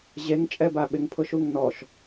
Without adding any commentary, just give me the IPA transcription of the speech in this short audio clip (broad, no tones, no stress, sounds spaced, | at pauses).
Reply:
ʑ e ŋ t͡ʃʼ ɛ b a ɓ ɪ ŋ pʰ ʊ ʃ u ŋ n ɔ ʃ